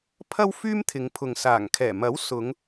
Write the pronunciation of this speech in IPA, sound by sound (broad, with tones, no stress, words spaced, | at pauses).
pʰɐ˥wfyː˥mt̪ʰɪ˨˧ŋpʰʊ˨ŋ saː˨˩ŋkʰɛː˨˩ mɐ˨˥wsʊ˨˧ŋ